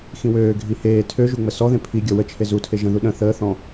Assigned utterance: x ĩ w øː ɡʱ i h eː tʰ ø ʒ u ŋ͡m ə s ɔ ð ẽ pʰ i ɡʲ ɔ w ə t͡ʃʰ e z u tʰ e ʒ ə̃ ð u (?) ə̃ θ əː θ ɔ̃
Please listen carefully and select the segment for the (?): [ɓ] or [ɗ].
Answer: ɗ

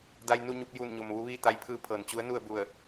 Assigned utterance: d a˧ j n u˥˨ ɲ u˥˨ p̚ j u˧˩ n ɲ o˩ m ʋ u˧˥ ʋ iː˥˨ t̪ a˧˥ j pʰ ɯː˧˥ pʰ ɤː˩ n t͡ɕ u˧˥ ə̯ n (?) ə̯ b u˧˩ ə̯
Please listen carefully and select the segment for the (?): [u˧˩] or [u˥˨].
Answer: u˥˨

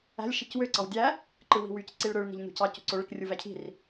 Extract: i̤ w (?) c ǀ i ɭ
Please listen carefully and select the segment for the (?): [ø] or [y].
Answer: y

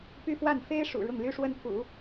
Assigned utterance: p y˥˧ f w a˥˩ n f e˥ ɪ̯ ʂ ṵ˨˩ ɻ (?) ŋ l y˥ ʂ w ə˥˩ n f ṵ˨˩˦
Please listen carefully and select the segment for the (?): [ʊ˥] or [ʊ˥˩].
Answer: ʊ˥˩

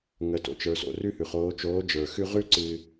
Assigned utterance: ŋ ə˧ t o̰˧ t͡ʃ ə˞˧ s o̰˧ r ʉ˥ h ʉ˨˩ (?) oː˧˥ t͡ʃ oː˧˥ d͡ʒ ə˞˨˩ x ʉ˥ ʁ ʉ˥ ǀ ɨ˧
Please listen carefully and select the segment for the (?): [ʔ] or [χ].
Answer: χ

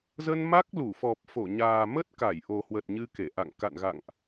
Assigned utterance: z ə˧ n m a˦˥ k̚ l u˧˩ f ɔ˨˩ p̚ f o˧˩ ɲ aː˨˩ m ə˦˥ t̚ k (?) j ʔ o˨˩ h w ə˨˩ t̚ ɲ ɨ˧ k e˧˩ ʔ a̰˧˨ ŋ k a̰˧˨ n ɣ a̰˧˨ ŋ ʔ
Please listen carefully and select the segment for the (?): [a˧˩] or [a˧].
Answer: a˧˩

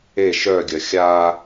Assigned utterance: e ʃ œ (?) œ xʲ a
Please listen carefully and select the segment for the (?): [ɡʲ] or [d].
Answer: ɡʲ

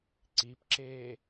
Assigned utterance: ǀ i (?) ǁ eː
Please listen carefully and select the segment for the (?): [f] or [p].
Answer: p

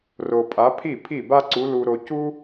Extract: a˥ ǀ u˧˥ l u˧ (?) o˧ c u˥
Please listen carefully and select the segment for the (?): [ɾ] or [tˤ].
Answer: ɾ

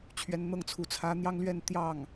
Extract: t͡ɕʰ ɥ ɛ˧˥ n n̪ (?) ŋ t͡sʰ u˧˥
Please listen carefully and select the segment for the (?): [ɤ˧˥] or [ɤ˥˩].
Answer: ɤ˥˩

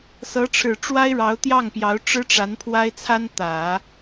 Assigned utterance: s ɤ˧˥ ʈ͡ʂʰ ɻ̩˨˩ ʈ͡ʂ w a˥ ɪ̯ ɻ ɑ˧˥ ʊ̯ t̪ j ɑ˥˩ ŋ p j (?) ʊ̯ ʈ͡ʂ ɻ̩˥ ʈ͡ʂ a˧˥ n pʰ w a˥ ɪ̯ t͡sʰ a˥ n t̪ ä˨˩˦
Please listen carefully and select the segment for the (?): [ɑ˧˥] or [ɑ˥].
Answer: ɑ˧˥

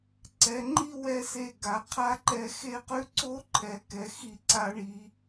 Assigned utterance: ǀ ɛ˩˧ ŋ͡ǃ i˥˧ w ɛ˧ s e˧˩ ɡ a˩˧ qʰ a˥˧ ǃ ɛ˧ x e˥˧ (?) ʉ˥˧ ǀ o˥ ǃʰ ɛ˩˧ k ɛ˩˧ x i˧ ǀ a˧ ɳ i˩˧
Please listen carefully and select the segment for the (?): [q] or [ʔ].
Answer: q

